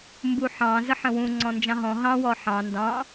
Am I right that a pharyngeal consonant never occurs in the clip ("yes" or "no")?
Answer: no